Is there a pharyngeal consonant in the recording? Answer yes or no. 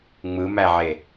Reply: yes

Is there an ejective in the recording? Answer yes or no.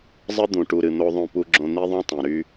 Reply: no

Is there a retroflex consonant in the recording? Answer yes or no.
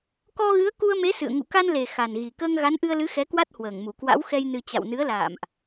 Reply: no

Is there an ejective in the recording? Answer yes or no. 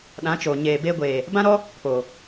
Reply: no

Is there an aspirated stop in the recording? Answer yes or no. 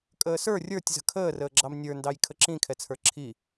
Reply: yes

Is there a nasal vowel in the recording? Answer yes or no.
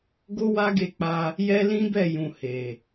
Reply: yes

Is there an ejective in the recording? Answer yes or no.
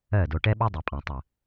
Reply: yes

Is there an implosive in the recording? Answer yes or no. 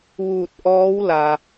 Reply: no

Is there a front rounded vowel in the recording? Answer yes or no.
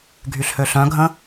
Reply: yes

